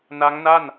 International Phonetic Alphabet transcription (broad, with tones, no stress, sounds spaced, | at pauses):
n a˦˥ ŋ n a˥˩ n